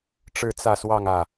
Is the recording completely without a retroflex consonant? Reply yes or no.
no